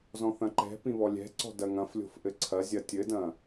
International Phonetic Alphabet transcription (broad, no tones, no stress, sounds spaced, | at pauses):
z ɔ̃ θ ɐ̃ ǃ ɛ̤ p ĩ β ɔ lʲ ɛ̤ ǀ ɔ̤ d ɐ ŋ ɐ̃ f lʲ o̤ f ʔ ɘ ǀʰ ɐ zʲ ɐ tʲ ɘ d ɐ̃